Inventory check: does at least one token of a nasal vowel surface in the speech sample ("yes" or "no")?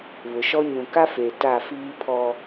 yes